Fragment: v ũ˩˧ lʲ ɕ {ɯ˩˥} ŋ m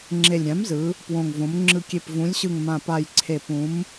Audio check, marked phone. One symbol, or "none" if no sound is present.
ɯ˨˩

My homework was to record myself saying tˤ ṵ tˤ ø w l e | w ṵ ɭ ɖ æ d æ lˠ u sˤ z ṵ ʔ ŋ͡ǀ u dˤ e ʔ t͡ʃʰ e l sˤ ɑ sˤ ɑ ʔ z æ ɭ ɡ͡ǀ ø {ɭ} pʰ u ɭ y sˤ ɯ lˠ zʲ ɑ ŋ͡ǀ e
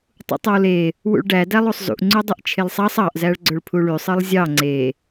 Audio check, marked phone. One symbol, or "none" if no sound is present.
ɭ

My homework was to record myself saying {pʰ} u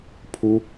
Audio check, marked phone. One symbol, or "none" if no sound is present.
pʰ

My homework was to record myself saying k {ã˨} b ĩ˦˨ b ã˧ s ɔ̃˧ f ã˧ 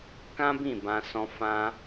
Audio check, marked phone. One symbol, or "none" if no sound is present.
ã˦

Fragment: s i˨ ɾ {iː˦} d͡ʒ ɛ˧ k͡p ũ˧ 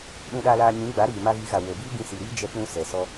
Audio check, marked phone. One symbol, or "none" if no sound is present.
iː˦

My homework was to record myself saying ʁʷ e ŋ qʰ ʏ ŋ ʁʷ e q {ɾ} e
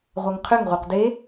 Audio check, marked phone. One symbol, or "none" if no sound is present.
d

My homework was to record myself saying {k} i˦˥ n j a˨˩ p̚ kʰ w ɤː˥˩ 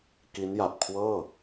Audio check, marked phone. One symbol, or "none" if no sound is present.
k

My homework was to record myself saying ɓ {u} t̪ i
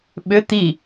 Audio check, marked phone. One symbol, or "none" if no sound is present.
ʏ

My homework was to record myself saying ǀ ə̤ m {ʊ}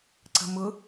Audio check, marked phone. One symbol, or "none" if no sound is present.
ʊ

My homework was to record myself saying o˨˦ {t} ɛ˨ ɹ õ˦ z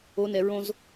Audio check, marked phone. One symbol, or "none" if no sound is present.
n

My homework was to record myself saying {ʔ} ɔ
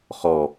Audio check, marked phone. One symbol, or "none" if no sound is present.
χ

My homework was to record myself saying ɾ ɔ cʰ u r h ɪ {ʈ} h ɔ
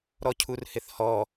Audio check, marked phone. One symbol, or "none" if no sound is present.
θ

